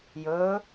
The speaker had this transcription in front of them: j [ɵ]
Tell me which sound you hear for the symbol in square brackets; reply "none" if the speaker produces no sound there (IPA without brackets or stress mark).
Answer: ɵ